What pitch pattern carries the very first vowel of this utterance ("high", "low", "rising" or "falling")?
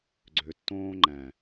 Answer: low